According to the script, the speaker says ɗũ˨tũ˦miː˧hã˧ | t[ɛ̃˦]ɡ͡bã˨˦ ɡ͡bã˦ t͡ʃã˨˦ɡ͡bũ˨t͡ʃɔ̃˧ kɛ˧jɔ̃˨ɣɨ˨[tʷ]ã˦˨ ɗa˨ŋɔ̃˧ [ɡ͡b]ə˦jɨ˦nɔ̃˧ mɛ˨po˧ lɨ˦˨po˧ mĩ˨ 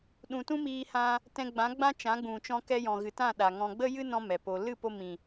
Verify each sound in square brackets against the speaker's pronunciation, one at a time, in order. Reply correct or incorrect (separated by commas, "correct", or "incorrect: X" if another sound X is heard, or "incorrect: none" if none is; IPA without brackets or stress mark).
incorrect: ɛ̃˧, incorrect: t, correct